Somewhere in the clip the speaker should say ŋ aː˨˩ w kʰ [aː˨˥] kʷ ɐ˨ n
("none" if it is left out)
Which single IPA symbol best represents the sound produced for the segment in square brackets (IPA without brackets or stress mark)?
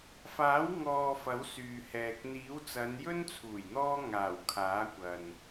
aː˨˥